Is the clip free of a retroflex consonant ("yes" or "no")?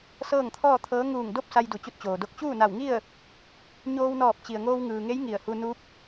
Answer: yes